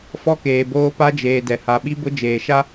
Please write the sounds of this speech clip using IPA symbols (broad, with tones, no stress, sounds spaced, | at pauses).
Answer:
f ɔ˦ k eː˨ b oː˦ p a˦ d͡ʒ eː˨ d ɛ˨ h a˨ ɓ i˦ b ʊ˦ d͡ʒ eː˨ ʃ a˦